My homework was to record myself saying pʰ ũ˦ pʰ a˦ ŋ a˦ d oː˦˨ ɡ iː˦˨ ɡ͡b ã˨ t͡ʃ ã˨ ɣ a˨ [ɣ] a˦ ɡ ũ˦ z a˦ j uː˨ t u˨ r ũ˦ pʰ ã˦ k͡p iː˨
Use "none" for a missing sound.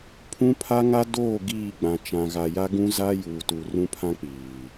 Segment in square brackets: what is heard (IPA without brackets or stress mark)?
j